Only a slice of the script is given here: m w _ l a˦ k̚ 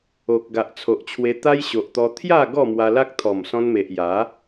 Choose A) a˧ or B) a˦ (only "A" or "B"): A